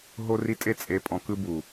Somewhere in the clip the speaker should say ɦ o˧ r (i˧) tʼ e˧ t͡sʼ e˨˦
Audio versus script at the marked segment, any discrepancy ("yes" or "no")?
no